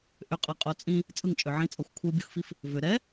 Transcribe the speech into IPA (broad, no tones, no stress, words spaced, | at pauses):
ʔʏqʼɤqʼo t͡sʼĩ | t͡sʼɯŋt͡ʃʼʏ ʕĩt͡sʼɤxʷ kʷʰɯbʲoxfif | vʏ ɾɛ